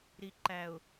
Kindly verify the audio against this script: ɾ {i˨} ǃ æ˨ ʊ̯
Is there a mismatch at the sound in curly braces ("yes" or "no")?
no